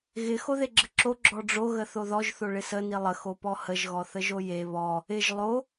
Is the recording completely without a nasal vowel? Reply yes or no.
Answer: yes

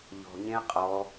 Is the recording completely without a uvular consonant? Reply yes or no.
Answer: no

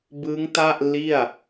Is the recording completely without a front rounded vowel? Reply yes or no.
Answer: yes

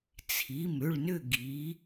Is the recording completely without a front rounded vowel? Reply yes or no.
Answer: no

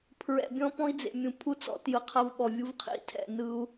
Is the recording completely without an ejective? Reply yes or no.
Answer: yes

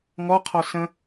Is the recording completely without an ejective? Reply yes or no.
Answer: yes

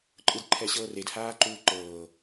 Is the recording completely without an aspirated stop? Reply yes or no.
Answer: no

